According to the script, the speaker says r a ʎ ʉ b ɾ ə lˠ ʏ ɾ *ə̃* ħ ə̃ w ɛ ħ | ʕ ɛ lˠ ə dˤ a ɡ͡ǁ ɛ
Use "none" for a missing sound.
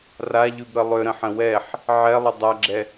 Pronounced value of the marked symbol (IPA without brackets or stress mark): ə̃